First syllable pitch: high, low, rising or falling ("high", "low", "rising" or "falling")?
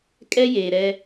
high